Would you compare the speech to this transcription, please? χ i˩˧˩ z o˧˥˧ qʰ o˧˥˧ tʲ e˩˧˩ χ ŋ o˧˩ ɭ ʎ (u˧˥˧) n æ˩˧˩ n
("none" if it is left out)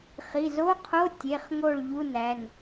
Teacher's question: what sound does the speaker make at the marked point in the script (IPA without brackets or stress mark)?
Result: u˧˥˧